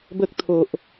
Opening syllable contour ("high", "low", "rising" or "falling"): high